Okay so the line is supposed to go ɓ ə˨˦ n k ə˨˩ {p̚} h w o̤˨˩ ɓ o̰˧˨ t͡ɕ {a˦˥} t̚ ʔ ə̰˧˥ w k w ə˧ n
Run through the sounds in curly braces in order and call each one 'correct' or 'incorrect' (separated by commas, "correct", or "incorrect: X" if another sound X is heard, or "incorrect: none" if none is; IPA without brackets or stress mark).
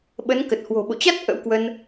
incorrect: t̚, correct